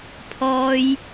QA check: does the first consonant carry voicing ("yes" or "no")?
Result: no